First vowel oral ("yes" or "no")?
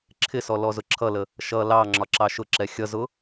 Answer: yes